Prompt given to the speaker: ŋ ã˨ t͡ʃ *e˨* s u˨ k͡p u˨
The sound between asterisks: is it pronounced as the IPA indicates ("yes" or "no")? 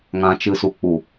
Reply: no